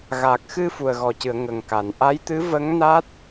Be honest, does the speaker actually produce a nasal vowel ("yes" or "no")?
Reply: no